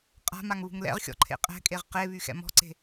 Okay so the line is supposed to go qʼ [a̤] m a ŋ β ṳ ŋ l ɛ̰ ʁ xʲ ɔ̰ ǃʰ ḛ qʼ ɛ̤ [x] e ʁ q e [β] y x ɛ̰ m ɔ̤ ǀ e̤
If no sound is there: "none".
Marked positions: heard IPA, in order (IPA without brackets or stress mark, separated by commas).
a̤, kʼ, β